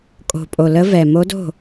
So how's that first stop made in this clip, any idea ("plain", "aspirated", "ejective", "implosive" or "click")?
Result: ejective